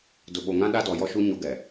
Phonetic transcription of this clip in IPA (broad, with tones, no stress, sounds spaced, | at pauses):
d ʊ˨ ɓ o˨ ŋ ã˦ ɗ a˦ d ɔ˨ j ɔ˦ ʃ u˦ ɲ o˦ ɡ ɛ˨